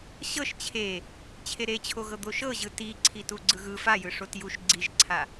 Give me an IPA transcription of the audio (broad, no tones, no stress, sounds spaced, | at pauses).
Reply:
ɕ ɤ ʃ t͡ɕʰ e | t͡ɕʰ e ɾ e t͡ɕʰ o ɣ ɤ d̪ o ʃ ɤ ʑ ɯ t i ǀʰ i t u ɡ͡ǀ ɯ ɣ ɯ f a j ɯ ʂ o t j u ʃ ɡ͡ǀ i ʒ ǀʰ a